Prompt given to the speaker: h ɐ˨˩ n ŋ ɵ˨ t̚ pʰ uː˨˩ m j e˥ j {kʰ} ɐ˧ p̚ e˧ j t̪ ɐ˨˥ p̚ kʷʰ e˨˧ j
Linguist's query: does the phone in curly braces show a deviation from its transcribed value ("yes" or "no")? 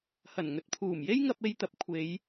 yes